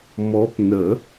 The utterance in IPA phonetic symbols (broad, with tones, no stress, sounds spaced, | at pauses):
m ɔ˧˥ p n ə˨˩˦